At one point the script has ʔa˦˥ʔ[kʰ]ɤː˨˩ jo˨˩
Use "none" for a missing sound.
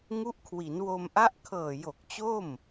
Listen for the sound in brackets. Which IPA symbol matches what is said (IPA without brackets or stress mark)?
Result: kʰ